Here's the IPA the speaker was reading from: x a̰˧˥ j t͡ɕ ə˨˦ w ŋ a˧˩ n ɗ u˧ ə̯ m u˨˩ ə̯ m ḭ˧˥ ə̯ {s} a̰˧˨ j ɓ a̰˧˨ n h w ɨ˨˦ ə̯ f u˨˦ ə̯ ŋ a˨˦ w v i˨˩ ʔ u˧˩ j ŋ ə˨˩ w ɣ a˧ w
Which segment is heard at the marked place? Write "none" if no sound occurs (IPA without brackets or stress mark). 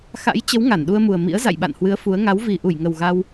z